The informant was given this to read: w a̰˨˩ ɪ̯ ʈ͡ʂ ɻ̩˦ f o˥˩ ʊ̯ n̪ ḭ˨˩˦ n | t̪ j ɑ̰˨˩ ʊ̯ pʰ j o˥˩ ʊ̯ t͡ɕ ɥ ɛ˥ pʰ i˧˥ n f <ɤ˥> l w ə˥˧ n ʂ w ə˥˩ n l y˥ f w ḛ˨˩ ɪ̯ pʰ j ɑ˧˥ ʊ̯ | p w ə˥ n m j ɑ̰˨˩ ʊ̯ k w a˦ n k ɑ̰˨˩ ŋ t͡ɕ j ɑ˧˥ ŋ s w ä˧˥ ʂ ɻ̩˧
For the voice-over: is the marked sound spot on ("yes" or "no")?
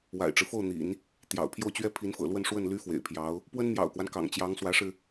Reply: no